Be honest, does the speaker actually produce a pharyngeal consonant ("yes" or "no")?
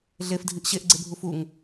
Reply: no